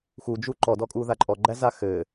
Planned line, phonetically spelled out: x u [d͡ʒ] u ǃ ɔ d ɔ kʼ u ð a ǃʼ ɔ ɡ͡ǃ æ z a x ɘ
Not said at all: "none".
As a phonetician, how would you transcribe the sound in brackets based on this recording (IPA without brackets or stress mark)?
d͡ʒ